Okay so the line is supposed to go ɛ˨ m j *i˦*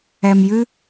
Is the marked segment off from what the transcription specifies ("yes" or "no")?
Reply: yes